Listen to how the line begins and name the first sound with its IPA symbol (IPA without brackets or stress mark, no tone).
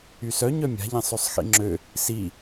y